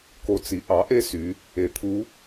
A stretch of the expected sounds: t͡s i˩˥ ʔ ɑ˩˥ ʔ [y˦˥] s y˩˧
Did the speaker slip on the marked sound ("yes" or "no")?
yes